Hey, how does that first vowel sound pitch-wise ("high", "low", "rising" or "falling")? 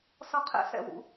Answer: high